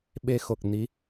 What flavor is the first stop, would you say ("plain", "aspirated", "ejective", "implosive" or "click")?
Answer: implosive